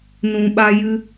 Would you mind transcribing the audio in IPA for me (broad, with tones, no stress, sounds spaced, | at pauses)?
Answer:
n ũ˨ ɓ a˧ j ɨ˧